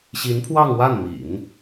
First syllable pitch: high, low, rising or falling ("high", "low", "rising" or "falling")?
rising